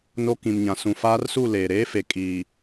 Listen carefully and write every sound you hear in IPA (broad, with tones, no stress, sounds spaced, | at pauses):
n o˦ k ĩ˨ m ɲ ã˨ s ũ˨ f aː˦ r s u˦˨ l eː˨ ɾ eː˦ f e˨ kʼ iː˨